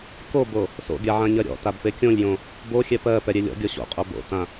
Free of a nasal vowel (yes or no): no